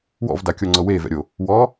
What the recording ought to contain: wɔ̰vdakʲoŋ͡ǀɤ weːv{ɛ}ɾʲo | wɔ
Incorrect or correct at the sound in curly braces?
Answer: incorrect: ɛ̰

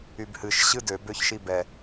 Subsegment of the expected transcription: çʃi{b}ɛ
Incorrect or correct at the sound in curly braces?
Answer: correct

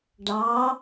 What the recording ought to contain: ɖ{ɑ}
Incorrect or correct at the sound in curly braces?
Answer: correct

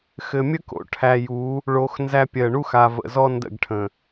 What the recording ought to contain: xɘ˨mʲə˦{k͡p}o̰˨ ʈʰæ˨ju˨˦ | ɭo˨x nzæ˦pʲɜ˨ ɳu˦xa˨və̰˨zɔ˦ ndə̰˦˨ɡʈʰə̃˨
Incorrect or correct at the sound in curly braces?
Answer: incorrect: k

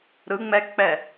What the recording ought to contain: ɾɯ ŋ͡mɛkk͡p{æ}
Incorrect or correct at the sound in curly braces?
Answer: incorrect: ɛ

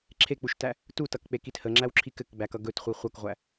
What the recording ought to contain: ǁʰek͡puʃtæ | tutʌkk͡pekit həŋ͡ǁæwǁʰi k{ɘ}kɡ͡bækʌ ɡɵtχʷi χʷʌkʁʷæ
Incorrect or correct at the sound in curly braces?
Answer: correct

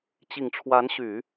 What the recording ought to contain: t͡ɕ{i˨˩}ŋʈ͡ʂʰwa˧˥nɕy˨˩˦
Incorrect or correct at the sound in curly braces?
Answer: correct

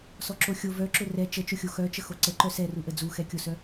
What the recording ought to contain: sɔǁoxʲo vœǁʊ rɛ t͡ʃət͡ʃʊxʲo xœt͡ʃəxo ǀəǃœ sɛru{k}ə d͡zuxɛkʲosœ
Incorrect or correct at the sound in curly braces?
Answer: incorrect: ʔ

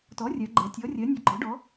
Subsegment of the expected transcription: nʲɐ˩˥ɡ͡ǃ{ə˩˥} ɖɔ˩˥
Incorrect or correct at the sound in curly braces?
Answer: incorrect: ɔ˩˥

